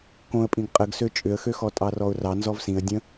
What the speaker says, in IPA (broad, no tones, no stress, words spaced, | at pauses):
kõə̯pʼĩɡ qʼəɡsø t͡ʃʼʏə̯xøxɔ tʼɑrɔʊ̯rɑ nzɔvsĩə̯ dʲə̃